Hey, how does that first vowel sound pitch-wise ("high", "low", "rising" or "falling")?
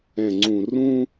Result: low